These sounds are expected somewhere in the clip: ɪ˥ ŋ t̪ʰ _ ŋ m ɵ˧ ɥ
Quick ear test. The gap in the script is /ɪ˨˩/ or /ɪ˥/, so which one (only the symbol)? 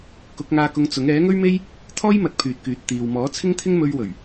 ɪ˥